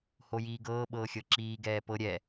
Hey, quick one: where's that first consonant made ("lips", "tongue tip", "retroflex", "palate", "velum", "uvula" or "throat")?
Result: throat